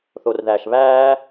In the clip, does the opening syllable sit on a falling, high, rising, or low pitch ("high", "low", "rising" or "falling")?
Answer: low